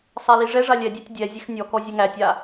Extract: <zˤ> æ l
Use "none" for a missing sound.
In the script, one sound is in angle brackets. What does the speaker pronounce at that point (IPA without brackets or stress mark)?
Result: sˤ